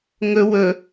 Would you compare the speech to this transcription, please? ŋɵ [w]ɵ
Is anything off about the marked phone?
no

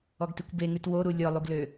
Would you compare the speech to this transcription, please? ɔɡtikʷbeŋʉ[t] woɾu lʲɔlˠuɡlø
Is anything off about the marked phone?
no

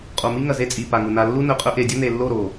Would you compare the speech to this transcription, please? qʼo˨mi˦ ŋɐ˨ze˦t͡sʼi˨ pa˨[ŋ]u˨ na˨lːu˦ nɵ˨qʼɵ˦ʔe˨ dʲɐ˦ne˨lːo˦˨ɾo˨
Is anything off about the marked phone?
no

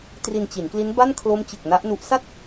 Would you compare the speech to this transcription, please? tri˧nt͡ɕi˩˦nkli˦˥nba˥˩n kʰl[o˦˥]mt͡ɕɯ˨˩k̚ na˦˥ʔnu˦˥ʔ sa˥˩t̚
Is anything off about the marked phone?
no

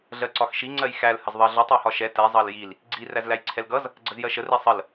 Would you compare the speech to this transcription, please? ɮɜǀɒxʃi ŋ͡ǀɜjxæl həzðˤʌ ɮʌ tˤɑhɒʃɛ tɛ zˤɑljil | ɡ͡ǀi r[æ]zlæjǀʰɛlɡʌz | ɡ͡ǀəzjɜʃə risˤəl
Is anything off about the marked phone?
no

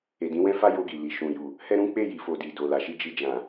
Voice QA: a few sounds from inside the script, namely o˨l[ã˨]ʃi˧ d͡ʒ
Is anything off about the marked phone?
yes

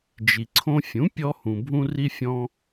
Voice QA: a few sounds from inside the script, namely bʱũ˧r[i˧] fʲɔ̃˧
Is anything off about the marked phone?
no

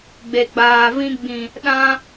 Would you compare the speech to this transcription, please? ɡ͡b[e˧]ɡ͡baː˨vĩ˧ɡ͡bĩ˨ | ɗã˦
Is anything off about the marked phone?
yes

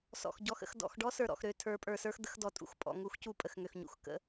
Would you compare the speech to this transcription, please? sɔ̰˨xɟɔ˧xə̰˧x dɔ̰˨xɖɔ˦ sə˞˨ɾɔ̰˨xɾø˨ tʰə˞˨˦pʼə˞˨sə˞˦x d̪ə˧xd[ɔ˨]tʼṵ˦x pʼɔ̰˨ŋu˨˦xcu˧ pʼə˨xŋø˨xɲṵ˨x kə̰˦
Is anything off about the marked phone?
no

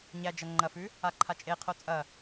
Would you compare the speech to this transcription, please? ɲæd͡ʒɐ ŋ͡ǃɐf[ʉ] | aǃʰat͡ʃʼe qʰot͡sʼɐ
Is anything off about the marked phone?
no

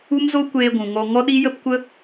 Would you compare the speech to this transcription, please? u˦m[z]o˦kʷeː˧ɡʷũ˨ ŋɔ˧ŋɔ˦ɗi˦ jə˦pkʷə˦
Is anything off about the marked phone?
no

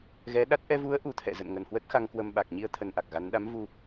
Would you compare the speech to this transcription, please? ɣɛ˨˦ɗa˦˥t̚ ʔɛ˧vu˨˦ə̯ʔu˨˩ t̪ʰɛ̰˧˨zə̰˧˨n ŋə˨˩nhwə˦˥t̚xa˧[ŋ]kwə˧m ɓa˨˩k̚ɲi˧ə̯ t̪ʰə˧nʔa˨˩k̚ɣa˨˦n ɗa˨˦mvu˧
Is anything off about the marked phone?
no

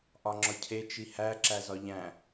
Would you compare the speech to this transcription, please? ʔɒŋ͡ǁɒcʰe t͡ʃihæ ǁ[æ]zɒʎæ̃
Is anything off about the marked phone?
no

